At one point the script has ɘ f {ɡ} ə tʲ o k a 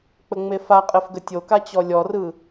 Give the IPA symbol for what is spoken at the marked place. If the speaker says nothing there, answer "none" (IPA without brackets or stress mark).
ɡ